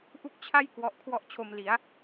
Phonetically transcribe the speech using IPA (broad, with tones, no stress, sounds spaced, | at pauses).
ʔ u˥˩ k̚ t͡ɕʰ a˥˩ j k w ɔ˦˥ ʔ kʰ w ɔ˥˩ ʔ t͡ɕʰ o˧ m l i˩˦ a̯